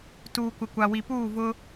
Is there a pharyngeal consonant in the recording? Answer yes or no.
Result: no